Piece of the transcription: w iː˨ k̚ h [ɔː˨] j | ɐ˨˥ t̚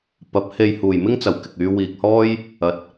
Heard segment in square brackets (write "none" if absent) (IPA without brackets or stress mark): ɔː˥